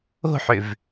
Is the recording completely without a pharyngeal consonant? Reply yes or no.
no